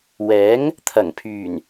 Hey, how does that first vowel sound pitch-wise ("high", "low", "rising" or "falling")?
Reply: rising